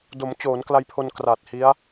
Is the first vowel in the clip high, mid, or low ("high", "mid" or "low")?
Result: mid